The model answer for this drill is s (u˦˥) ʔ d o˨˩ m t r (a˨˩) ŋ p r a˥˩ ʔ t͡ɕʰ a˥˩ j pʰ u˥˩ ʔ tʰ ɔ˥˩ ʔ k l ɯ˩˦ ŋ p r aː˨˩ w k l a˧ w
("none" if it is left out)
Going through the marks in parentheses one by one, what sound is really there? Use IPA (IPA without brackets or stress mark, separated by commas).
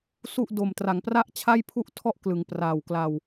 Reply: u˥˩, a˩˦